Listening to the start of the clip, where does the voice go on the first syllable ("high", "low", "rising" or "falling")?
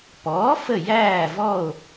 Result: rising